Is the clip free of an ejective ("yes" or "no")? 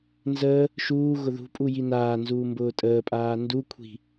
no